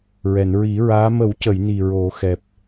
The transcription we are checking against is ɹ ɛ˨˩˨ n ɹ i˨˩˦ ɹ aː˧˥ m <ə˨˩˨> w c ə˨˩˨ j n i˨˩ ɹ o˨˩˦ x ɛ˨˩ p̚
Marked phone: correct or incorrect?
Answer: incorrect